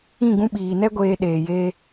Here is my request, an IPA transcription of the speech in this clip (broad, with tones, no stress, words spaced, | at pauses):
ĩ˦˨ ɡũ˧ɓiː˨ nɛ˦ ɡʷeː˧ɗeː˨jeː˧